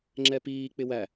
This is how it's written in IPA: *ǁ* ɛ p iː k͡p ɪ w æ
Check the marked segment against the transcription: incorrect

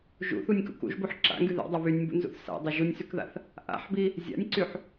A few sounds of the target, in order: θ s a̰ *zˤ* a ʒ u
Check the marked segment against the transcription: incorrect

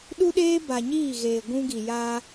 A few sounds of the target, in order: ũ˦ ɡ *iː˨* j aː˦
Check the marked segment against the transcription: incorrect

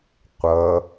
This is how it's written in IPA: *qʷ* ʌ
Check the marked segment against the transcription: correct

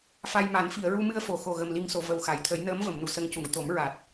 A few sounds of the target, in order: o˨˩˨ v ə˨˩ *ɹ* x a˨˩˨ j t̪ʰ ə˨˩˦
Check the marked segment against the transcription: incorrect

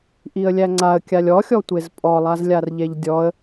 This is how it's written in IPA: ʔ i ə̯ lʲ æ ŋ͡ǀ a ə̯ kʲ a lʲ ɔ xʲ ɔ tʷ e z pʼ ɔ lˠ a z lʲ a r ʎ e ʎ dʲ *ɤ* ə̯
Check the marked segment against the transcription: incorrect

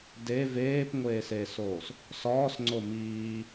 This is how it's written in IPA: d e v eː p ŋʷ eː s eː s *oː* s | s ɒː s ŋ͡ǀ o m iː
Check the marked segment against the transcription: correct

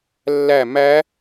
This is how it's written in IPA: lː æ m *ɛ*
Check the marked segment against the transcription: incorrect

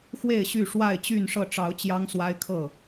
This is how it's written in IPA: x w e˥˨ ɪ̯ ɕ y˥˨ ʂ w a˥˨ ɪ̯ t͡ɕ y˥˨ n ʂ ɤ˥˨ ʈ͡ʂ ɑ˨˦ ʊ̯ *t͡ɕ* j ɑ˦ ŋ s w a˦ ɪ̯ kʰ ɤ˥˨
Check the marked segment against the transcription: correct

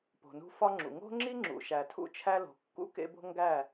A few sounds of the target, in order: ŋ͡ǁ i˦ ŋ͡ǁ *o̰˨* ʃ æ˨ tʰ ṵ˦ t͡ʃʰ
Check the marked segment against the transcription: incorrect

